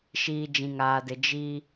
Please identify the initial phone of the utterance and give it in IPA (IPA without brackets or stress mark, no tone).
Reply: ʃ